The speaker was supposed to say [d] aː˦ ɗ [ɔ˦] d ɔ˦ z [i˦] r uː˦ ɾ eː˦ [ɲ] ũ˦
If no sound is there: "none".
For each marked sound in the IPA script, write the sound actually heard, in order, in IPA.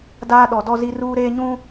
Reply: d, ɔ˨˦, i˦, ɲ

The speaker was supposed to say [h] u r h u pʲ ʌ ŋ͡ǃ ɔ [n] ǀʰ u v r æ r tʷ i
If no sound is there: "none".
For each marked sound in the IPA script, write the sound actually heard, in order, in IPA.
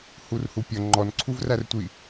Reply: h, n

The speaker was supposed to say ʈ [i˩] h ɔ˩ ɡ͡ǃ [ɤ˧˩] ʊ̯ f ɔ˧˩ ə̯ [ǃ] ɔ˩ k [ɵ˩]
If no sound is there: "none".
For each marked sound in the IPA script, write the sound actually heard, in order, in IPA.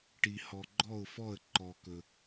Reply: i˩, ɔ˧˩, ǃ, ɵ˩

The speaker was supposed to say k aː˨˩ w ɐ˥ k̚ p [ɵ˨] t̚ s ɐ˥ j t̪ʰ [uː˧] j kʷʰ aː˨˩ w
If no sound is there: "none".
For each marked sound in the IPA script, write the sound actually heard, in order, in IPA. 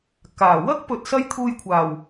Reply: ɵ˧, uː˧

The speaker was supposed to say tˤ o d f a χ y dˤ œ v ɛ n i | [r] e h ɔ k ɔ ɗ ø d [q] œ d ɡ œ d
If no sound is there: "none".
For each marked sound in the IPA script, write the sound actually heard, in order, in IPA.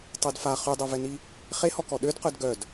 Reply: χ, q

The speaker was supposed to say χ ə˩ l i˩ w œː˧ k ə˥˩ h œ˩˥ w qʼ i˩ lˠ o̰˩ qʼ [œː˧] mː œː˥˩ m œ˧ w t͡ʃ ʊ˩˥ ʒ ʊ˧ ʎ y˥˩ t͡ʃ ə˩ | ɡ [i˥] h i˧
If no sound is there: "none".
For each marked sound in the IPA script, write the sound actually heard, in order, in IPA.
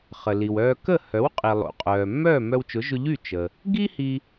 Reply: œː˩, i˥

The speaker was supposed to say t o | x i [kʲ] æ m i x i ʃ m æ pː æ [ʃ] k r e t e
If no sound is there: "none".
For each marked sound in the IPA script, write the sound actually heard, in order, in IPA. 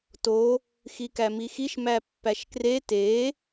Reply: k, ʃ

